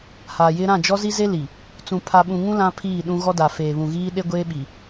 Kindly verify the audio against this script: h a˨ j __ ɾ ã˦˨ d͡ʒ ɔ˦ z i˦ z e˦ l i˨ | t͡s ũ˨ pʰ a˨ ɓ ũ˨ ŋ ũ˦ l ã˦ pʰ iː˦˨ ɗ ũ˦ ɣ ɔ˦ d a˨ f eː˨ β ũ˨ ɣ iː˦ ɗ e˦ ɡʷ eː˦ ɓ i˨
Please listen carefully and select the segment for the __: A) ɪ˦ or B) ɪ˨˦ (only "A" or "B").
A